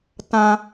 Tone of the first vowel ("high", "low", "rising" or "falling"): high